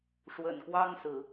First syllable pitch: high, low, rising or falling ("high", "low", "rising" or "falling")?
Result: low